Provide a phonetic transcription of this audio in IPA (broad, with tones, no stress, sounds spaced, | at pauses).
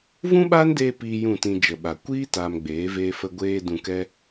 v ũ˦ ɓ aː˦ n d eː˧ p iː˦ j ũ˦˨ t ĩ˧ d͡ʒ ə˨ ɓ a˨ kʷ iː˦ t aː˧ m ɡ͡b eː˨˦ v eː˦ f ə˦ ɡʷ eː˧ d ũ˧ k ɛ˦